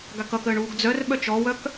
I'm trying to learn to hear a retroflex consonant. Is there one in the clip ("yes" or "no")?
yes